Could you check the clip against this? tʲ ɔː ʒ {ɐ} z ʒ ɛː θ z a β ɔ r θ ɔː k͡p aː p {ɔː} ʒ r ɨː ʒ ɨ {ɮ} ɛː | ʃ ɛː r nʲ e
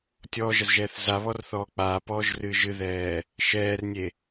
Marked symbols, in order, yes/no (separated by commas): yes, yes, no